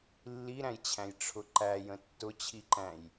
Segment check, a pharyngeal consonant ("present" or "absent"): absent